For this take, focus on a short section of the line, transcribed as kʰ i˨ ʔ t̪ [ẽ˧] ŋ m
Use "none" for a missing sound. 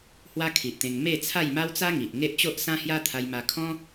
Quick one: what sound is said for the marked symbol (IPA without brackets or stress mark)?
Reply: ẽ˧